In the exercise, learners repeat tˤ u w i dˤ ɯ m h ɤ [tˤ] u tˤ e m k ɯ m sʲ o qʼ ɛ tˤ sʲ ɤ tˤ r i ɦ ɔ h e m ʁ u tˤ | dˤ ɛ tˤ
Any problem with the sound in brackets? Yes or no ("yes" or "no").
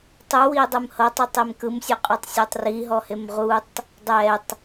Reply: no